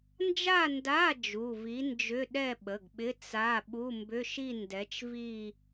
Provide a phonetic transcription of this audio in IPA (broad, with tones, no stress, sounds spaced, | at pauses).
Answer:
n d͡ʒ a˥˧ n d a˧˥˧ d͡ʒ u˩˧˩ v i˨˥ n d͡ʒ ʏ˧˥˧ ɗ ɛ˥˧ ɓ ə˩˧˩ ɡ ɓ ɪ˧˥˧ t͡s a˧˥˧ ɓ u˧˥˧ m b ʏ˧˥˧ ʃ i˥˧ n d ɛ˨˥ t͡ʃ v i˥˧